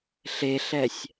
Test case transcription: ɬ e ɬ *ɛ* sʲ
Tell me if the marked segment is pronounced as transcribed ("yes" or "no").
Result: yes